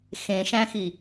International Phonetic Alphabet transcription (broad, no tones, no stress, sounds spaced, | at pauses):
x ẽ ʃ æ̃ x i